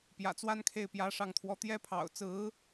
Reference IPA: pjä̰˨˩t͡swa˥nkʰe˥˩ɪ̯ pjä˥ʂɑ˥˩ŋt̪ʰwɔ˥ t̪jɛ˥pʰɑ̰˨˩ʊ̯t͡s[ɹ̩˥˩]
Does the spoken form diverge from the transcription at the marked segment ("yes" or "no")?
yes